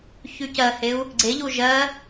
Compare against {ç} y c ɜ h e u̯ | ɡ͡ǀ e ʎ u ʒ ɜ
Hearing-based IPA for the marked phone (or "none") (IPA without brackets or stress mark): ç